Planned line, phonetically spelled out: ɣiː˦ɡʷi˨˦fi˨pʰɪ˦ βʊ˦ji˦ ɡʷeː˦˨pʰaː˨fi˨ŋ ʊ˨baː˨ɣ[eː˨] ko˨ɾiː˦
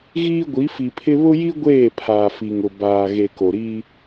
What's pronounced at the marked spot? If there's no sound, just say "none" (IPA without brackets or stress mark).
e˨